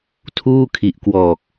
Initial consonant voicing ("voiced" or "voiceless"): voiceless